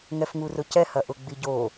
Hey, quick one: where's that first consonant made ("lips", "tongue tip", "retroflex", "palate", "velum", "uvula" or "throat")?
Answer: velum